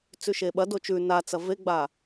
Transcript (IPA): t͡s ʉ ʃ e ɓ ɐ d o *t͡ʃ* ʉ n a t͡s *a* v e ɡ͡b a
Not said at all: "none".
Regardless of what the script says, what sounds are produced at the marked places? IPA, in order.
t͡ʃ, ɐ

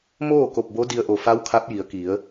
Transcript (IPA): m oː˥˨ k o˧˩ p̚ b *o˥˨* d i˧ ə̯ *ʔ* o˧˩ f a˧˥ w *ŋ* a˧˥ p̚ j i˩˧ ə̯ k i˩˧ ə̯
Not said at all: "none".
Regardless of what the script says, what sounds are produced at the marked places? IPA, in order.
o˧˥, ʔ, kʰ

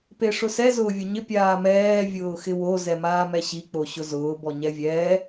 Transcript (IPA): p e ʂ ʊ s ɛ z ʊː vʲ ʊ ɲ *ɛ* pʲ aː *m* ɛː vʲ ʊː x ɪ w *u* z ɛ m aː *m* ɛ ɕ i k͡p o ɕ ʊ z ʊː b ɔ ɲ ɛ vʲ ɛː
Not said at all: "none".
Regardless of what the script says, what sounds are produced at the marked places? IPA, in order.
ɪ, m, o, m

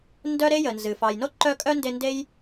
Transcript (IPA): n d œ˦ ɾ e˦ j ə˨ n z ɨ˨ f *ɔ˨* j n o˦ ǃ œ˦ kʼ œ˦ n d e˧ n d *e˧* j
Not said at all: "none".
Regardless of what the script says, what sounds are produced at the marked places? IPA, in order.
ɑ˨, e˦

